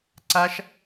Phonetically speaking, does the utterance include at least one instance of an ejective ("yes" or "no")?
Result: no